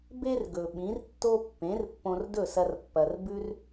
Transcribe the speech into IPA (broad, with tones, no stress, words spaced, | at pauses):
be˥rɡɵ˩ ɓĩ˩˥rtːo˥ pːẽ˩˥rpːõ˧r dɵ˥˩sɐ˧r pːɐ˩rbʉ˥r